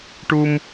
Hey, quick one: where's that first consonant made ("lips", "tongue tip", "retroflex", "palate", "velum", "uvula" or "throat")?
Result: retroflex